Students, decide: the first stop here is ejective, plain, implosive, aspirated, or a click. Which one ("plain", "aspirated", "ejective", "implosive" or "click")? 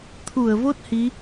aspirated